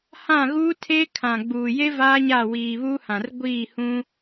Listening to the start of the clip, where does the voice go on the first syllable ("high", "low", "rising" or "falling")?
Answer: falling